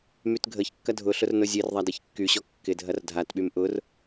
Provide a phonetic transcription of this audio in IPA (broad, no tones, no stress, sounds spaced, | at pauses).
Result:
m y t ɡʱ ə ç kː ɐ dʱ ʊ ɬ ʊ r n ʊ zʲ e r ðˤ a d i ç kː y ɕ ɔ kː ɪ dʱ ɐ r dʱ a t ɓ y m ʔ ʊ r